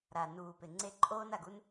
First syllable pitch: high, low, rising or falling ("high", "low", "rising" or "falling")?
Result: low